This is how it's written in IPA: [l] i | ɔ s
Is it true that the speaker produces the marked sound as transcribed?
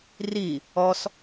no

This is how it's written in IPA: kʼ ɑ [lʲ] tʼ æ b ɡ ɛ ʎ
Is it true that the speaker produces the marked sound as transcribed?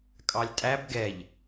yes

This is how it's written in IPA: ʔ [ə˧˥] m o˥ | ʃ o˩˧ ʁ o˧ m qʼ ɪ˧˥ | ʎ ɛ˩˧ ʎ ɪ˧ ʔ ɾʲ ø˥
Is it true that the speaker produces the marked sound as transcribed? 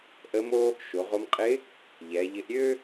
yes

